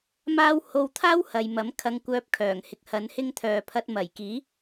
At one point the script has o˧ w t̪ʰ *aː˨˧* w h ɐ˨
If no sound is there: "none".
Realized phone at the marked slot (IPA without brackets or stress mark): aː˥